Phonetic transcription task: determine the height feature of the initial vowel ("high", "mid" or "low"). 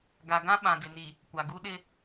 low